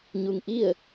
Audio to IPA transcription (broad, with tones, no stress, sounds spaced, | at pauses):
ɲ u˧ ŋ ʔ i˥˨ ə̯